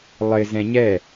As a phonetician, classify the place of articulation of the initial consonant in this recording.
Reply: alveolar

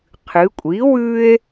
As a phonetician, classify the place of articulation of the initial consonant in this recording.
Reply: uvular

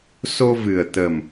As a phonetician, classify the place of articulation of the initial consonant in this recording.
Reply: alveolar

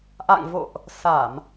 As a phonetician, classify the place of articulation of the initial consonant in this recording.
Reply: glottal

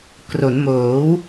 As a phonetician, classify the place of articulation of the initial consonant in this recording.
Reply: velar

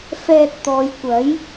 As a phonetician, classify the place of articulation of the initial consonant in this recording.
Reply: labial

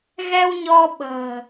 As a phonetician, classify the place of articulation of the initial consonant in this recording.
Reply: velar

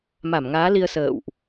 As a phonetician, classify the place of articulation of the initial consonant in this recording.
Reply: labial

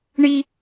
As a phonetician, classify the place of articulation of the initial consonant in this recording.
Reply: retroflex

